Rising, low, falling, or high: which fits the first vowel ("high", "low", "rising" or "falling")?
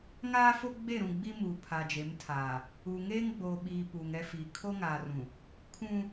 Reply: high